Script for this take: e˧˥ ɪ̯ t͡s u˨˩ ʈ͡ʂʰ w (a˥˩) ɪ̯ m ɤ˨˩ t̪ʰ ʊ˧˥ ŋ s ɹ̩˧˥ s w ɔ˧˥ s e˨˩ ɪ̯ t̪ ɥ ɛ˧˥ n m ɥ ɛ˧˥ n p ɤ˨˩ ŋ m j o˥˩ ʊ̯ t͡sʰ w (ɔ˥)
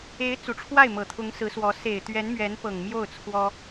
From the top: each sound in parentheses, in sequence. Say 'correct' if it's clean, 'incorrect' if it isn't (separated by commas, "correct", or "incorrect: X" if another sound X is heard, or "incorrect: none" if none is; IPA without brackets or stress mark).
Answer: correct, correct